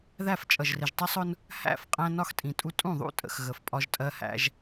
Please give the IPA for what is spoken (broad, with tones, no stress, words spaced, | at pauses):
ðæ˦˨f t͡ʃʼʌ˨ʒrɪ˨ʒtˤɪ˦sˤʊ˦n | hæ̰˦˨fqʼæ̃˦ nɒ˦xtʼĩ˨tʼu˦ tʼũ˦˨ðˤṵ˦tʼə̰˨x ɣə˨fpʼɒ˦ʒtʼɜ˦hæ̰˦ʒ